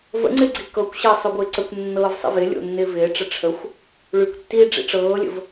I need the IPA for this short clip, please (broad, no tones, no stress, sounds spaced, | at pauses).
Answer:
v ə̰ ŋ͡ǀ ɪ ɡ͡ǀ i k ɤ kʷ ɕ əː sˤ o ɡʷ ɪː ǀ ə kʷ nː ɤː v sˤ ḭ v ɪ lʲ o̰ nː ɪː v ɪː ʈ͡ʂ ə ʈ͡ʂʰ ə xʷ | ɭ y kʷ tː iː ɖ͡ʐ ḭ ʈ͡ʂ ɤː lʲ ə̰ v